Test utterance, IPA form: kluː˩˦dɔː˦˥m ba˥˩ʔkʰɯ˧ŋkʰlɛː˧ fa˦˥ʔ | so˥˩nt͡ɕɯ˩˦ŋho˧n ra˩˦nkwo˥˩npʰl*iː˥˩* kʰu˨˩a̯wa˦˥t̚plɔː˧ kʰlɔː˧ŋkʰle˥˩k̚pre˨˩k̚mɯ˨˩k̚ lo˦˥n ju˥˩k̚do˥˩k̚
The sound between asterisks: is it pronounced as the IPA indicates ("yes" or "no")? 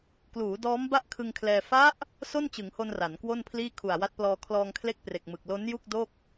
yes